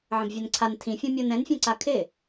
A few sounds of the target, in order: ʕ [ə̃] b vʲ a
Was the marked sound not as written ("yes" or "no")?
no